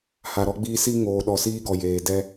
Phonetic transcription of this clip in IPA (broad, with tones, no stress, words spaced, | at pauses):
ha˨ɾɔ˦ɡ͡biː˦ si˦ ŋoː˨ɗɔ˨siː˦ɡɔ˨ jeː˨ dɛ˦